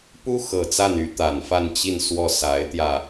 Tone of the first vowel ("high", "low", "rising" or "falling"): high